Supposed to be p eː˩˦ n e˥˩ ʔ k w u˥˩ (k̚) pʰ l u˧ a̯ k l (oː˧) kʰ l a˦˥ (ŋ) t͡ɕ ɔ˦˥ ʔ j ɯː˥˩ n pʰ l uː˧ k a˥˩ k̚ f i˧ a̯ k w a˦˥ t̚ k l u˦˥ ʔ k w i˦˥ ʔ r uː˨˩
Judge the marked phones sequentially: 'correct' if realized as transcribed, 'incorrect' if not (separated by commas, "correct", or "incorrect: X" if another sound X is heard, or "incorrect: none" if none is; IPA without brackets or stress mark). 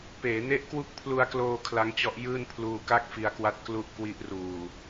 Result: correct, correct, correct